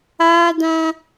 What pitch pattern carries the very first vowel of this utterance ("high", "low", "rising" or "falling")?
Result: high